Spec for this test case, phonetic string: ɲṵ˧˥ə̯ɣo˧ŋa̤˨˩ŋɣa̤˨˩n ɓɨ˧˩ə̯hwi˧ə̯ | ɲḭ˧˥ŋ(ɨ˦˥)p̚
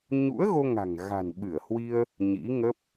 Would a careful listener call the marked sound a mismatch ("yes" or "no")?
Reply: yes